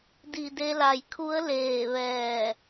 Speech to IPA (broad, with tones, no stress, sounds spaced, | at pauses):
d i˧˩ d e˧ l a˧˩ j kʰ u˧˥ ə̯ l eː˧˩ ʋ ɛː˧˩